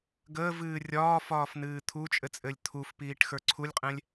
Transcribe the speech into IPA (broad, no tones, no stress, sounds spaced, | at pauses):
ɡ əː v ɨː rʲ ɒː f ɒː f n ɨː t̪ʰ u t͡ʃʼ ɘ t͡sʼ ɘ lʲ t̪ʰ u f p iː ʈ x ə˞ ǀʰ u lʲ qʼ ɛ̃ lʲ